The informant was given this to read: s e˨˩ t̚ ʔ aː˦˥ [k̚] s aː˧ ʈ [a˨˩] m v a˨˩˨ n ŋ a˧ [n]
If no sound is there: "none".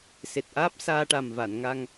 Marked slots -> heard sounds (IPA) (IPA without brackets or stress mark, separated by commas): p̚, a˨˩, ŋ